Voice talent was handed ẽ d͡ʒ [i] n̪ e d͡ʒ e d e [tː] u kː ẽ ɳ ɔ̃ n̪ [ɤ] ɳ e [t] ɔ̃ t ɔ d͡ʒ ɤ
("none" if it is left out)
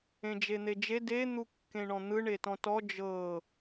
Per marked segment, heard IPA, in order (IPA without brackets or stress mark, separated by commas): e, n̪, ɯ, t